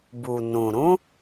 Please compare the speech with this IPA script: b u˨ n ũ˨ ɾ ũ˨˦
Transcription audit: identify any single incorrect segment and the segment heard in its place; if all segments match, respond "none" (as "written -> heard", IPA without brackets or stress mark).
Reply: none